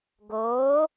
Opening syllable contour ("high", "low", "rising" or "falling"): rising